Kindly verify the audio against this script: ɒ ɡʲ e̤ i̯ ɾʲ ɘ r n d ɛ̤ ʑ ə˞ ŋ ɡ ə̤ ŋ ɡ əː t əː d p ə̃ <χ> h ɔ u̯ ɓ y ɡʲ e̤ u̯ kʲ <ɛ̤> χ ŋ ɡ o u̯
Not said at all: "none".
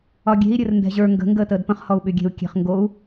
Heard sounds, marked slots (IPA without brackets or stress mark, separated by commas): χ, e̤